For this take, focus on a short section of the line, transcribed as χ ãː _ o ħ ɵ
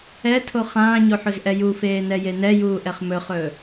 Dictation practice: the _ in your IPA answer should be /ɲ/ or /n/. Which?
ɲ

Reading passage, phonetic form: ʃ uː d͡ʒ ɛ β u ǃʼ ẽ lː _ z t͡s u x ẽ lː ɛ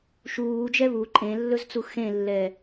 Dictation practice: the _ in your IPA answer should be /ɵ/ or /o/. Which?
ɵ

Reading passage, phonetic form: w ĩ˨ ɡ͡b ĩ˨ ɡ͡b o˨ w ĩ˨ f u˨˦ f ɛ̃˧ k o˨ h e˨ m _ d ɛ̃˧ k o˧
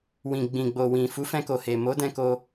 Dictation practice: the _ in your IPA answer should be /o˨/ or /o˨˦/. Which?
o˨˦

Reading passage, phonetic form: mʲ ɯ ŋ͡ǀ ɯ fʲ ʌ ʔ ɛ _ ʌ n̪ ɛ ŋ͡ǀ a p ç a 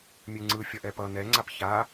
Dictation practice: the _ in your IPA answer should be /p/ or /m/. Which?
p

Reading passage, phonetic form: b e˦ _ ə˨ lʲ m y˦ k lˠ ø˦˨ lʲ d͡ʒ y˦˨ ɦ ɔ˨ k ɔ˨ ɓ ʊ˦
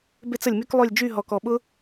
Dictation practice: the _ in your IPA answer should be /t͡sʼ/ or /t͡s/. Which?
t͡s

